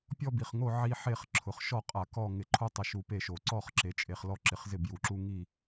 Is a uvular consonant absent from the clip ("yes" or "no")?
no